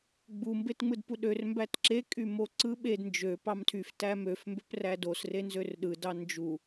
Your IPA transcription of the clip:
ɡ͡bu mbetŋ͡mɯdpuɗør mbætǁe kʼymoǀɯ ɓed nd͡ʒø pɑmtʰyf tæmøf mbøprædos renzørɗɯ dɑnd͡ʒu

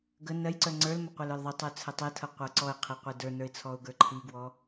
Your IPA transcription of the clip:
ɡə nɜjǀœ ŋ͡ǀə˞lmə qʷə˞lə˞lðˤitˤə˞ t͡sʰətˤetʰɤ qʷə˞ǀɔɪ̯qʰi qʷedə˞nə˞ɪ̯ t͡sʰɔʊ̯ɡə˞ǃʰiɡwɔ

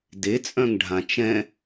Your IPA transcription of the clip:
det͡sʼœ̃ŋɖʱã t͡ʃɛ̃

